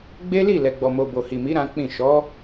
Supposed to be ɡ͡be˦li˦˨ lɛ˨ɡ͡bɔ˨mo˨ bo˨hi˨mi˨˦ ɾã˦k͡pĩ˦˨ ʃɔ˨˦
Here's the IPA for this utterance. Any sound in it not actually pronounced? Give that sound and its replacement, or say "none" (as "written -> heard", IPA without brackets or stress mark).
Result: none